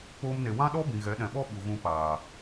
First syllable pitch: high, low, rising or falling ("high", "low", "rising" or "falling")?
high